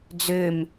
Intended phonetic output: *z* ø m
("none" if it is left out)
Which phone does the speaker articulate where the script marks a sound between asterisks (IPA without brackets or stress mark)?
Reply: d͡z